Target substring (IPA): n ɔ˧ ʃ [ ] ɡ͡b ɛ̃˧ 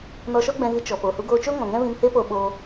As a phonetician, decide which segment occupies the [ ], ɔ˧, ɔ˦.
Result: ɔ˦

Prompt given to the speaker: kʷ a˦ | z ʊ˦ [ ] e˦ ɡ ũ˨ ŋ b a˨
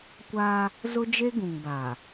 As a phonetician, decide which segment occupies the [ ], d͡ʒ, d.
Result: d͡ʒ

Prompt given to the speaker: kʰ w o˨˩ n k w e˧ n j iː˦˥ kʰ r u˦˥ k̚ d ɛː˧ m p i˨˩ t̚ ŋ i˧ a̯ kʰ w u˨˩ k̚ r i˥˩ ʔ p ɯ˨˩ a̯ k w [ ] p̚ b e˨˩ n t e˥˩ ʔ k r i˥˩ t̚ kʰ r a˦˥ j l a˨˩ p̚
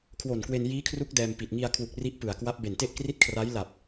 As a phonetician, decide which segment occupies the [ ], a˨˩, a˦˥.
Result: a˦˥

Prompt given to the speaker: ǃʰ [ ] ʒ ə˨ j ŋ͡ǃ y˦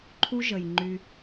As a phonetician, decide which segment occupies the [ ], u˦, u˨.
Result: u˦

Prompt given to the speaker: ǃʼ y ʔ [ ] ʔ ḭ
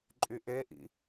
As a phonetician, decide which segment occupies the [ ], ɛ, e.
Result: e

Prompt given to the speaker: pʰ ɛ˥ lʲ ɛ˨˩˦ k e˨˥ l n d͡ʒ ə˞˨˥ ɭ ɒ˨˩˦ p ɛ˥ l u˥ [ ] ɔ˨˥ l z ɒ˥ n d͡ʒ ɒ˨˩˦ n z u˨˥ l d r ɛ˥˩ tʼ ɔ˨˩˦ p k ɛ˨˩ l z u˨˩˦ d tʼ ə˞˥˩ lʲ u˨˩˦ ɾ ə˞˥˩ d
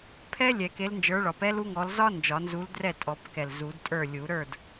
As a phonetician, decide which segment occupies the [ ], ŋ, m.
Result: ŋ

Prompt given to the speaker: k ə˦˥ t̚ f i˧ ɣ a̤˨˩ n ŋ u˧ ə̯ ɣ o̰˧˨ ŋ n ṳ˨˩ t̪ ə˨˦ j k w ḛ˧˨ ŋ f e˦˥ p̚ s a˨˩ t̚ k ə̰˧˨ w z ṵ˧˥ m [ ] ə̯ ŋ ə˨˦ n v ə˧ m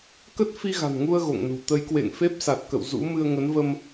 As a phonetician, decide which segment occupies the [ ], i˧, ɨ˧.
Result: ɨ˧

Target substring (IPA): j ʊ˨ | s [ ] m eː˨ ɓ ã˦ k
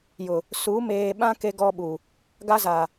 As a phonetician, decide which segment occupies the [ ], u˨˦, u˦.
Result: u˨˦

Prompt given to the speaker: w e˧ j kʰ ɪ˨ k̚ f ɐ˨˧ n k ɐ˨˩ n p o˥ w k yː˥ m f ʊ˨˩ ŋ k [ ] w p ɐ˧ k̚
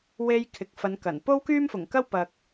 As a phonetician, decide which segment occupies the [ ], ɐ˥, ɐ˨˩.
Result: ɐ˥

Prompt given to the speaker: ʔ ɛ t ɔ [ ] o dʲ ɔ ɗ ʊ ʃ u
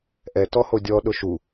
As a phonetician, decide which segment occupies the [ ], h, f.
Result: h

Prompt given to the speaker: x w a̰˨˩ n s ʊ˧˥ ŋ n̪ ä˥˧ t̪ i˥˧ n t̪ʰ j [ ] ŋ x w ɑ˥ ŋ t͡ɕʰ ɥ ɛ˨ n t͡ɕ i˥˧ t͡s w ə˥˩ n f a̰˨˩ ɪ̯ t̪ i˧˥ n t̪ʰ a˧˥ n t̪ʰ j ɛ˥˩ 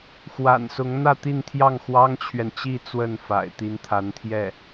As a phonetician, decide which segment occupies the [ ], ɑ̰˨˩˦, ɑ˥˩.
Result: ɑ˥˩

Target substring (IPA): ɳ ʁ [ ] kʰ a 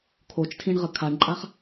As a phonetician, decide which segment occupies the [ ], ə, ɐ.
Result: ə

